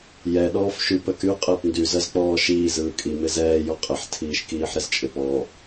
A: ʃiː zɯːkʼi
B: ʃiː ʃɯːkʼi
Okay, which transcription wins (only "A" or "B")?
A